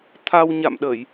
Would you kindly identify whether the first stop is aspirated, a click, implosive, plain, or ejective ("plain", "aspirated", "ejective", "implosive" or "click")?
aspirated